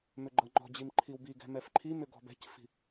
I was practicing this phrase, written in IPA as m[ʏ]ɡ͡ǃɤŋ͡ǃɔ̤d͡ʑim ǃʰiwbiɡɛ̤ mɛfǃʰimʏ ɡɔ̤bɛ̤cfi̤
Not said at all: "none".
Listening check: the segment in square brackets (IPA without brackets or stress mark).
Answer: ʏ